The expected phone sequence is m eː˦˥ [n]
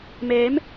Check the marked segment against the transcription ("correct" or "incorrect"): incorrect